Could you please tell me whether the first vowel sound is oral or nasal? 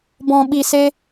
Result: nasal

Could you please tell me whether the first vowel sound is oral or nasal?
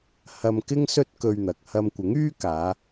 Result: oral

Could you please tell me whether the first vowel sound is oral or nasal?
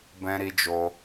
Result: nasal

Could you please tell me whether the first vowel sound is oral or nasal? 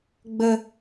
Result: oral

